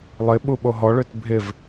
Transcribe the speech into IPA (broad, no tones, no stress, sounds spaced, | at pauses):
lˠ ɪ ɓ u ɓ o ɦ ɔ ɭ ø t bʱ ɪ v